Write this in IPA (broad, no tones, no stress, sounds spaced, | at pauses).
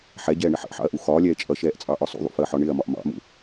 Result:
ħ ɛ ɟ ɛː ɳ ɪ ħ ə̰ ʔ ħ ɑ̰ ɐ̯ ʔ u x ɒː lʲ ɛː t͡ʃʼ ʌ ʃ ɛː ʔ t͡sʼ ɑ ʔ ɒ sˤ ṵ ðˤ ṵ f əː ħ ɒ ɳ ɪː ɐ̯ m ɒ ʔ m ɑ̰ m ṵ